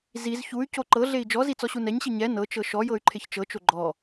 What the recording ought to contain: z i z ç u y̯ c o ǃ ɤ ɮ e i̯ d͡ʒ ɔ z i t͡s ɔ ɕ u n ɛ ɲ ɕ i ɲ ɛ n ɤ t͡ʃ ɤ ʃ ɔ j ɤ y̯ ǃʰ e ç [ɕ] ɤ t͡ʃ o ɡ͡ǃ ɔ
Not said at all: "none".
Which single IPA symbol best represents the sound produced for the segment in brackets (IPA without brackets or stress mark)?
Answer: t͡ʃ